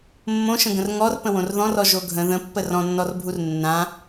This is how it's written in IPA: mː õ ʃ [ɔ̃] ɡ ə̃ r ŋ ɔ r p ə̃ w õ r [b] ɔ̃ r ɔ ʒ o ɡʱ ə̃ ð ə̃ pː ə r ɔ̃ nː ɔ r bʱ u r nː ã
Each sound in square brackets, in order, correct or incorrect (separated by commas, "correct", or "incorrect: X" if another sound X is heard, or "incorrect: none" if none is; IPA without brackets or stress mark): incorrect: ə̃, incorrect: ð